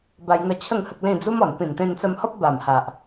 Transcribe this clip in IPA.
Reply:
b a˧ j ŋ ə˧ t͡ɕʰ ə˥˧ ŋ h ə˦ k̚ l ĩ˥˧ d͡z u˦ m ɔ˨˩ n p ĩ˨˩ n t̪ ẽ˧ n t͡s ə˧ m h ɔ˦ p̚ b a˨˩ m h a˨ ʔ

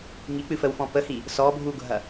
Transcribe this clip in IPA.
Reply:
ŋ i k͡p ɨ f ə w f ɔ̃ p ə h i | s ɔ bʱ u ɡʱ ɐ

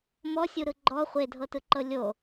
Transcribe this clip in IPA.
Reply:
m ɔ sʲ u ɾ ɯ ɡ͡ǃ ɔ χʷ e dʱ ɤ t ɯ ǃ ɤ lʲ o

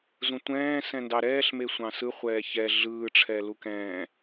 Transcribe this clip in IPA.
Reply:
z ũ tʷ ɛ̃ː s ɛ̃ n d ɑ ɾ ɛː ɬ m e sʷ ɑ̃ s ɯ χʷ ɛː ç ɛ ɮ ɯː ʈ͡ʂʰ ɛ l u k ɛ̃ː

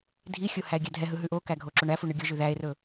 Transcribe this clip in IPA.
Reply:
dʱ i xʲ o h æ e̯ ɡʲ æ dʱ ɛ ɦ ɯ ɦ ʉ ʔ o k æ ɡʱ o ǁ o ɳ æ f u ɳ ɯ ɡʲ o ʒ ʉ ð æ e̯ r ɵ

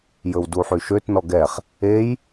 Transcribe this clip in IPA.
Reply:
j ɵ w d u ħ y ʃ ø t n ɔ ɡ ɛ χ | e j

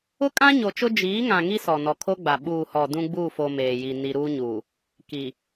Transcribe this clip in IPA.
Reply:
ʊ˦ kʼ ã˦ ɲ o˨ t͡ʃ ʊ˦ d͡ʒ iː˨˦ ŋ ã˨ ŋ i˦ s ɔ˨ n ɔ˨ kʰ o˦ ɡ͡b a˨ ɓ uː˨ h ɔ˨ d ũ˦ ɡ͡b uː˦˨ f o˨ m eː˨ j i˨ n i˦ ɾ uː˦ ɲ uː˨ | k i˨

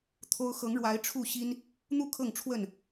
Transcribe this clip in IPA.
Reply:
t̪ʰ o˦ ʊ̯ x ɤ˨˦ ŋ ɻ w a˨˦ ɪ̯ ʈ͡ʂʰ u˥˨ ɕ i˦ n | n̪ u˥˨ kʰ ɤ˥˨ ŋ ʈ͡ʂʰ w ə˥˨ n

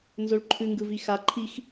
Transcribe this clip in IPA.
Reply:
n z o ɭ ǃʰ ʉ ŋ ɡ ɯ v i x a ǃʰ i x

